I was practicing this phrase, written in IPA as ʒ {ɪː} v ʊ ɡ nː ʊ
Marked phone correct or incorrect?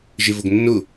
incorrect